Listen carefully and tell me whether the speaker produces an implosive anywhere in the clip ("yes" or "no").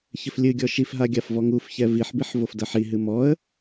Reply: no